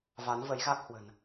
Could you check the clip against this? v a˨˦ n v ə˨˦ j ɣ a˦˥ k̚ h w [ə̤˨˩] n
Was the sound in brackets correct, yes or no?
yes